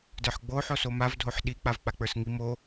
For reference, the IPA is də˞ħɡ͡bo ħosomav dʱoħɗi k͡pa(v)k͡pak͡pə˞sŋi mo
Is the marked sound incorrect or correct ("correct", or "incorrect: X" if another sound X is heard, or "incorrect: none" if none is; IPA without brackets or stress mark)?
correct